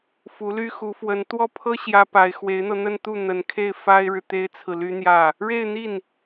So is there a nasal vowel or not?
no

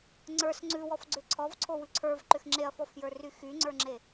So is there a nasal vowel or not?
no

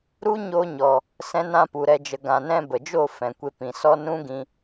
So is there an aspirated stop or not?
no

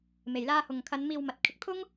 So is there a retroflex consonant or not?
no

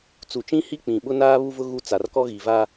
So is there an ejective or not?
no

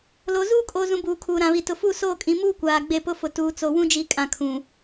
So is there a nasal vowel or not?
yes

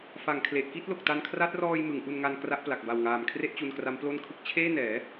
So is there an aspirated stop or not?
yes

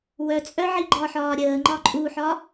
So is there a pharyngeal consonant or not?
yes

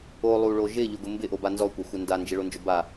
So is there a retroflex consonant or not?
yes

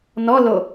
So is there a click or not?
no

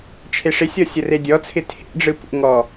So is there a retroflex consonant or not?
yes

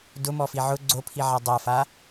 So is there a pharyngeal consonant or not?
yes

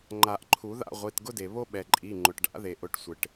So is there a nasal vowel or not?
no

